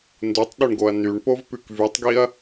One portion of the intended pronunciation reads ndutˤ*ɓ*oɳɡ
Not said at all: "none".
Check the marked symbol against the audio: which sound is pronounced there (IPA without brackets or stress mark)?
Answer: ɗ